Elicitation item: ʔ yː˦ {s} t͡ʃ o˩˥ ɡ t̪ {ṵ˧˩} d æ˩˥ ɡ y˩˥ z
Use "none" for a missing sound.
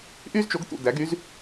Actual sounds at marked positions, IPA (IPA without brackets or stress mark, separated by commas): z, ṵ˧˩